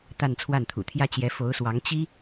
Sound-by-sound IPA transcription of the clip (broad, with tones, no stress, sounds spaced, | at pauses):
t̪ a˥˧ n t͡sʰ w a˥˩ n t̪ʰ ṵ˨˩ t̪ʰ j ä˥ t͡ɕ j ɛ˧˥ f o˧˥ ʊ̯ s w ɑ˧˥ ŋ t͡ɕ i˥